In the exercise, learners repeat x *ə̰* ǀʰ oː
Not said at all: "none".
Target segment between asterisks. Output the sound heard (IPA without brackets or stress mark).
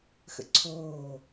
ə̰